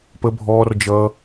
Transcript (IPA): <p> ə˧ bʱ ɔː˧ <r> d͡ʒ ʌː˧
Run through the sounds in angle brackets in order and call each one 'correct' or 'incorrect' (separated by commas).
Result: correct, correct